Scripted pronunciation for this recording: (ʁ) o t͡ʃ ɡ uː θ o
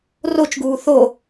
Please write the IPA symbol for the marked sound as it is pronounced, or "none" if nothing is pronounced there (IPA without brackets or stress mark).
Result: r